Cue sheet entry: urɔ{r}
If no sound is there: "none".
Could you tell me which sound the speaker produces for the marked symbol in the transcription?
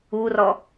none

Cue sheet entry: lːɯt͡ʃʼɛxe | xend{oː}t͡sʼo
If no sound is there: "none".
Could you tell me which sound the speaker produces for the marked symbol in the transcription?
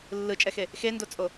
o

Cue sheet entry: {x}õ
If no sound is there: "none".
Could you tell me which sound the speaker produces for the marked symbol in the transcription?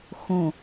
x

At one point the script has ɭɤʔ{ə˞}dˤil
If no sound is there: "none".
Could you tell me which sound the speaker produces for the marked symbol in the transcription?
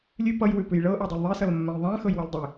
ʌ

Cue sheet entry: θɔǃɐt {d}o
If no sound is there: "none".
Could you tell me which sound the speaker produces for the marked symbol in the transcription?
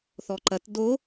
d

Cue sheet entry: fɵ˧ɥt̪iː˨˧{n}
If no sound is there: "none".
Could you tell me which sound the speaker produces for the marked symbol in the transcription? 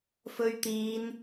n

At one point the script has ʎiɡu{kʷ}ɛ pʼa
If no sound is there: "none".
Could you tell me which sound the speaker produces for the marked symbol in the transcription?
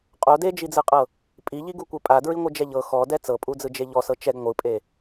kʷ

